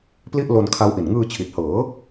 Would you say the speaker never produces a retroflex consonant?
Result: yes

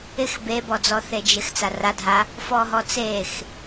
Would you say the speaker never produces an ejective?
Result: yes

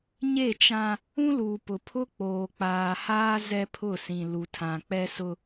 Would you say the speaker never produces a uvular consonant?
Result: yes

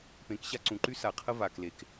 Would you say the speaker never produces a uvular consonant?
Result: no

